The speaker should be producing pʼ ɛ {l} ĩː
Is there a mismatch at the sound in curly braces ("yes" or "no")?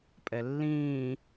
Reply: yes